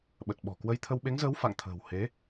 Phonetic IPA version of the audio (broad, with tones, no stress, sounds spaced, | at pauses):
ɓ ə˨˩ t̚ ɓ ɔ̤˨˩ k w ə˧ j t̪ʰ ə˧ w ɓ e˨˦ ŋ z əː˨˦ w f a̰˧˨ ŋ t̪ʰ ə̤ː˨˩ w h e˨˦